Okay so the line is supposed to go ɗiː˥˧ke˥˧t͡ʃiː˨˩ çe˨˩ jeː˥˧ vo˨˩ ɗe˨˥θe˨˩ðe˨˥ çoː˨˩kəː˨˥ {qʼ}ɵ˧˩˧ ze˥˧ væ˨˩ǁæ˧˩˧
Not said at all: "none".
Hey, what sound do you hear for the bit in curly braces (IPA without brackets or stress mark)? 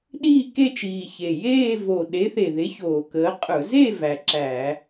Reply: qʼ